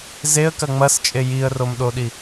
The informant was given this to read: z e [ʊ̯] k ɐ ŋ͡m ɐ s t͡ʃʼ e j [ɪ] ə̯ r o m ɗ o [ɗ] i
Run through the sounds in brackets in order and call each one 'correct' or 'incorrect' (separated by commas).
incorrect, incorrect, correct